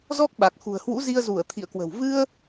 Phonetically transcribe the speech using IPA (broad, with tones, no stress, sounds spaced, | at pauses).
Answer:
z ɔ˦˥ k̚ ɓ a˨˩ k̚ x ṳ˨˩ ə̯ h w ṵ˧˥ z i˧ ə̯ z u˧˩ ə̯ t̪ʰ ḭ˧˨ ə̯ k w ə̤˨˩ w v ɨ˧ ə̯